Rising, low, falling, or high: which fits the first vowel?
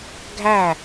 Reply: falling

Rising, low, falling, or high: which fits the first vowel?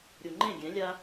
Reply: low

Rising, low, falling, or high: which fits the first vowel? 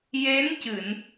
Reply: rising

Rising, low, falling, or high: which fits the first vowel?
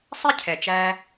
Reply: high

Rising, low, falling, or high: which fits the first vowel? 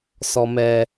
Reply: low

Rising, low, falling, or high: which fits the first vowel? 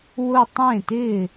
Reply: falling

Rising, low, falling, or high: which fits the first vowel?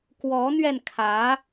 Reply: rising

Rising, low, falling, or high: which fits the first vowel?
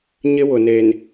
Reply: high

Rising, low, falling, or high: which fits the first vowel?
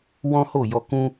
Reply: high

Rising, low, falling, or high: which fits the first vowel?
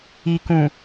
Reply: low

